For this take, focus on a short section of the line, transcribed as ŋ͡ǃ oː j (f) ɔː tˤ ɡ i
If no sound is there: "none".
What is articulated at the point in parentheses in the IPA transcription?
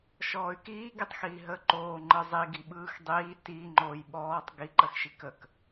ɓ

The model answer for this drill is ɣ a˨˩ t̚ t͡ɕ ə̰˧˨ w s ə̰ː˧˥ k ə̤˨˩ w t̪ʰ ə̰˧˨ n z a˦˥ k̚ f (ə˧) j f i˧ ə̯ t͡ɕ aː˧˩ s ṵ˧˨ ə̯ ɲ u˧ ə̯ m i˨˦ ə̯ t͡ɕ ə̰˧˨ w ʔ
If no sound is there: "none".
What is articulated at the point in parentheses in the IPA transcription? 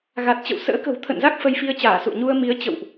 ə˧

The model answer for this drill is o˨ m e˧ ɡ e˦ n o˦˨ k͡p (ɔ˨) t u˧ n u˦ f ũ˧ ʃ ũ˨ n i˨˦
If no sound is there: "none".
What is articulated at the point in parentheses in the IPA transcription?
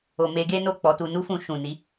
ɔ˧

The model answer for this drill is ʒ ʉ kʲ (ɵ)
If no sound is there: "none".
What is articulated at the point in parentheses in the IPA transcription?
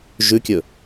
ɵ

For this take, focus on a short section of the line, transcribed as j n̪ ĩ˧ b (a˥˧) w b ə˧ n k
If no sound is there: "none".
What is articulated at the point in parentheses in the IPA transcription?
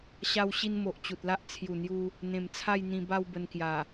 a˥˧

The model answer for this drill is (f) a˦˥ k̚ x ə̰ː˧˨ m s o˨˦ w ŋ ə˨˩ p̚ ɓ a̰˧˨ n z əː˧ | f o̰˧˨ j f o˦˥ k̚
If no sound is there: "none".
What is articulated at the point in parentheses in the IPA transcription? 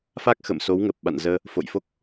f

